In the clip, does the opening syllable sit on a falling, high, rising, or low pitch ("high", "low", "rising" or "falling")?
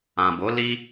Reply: low